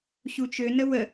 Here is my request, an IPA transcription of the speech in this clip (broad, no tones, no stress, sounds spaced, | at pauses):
ɕ u t͡ʃ ø n ə w ə